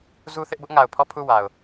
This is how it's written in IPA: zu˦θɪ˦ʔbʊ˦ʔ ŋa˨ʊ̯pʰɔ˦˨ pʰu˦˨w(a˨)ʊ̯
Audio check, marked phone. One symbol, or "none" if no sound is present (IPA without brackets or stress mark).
a˨